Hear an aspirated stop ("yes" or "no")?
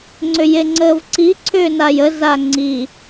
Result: yes